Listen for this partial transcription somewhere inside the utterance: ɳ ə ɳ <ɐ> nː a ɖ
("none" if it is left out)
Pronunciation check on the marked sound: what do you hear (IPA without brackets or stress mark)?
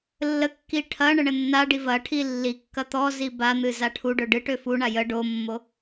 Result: ə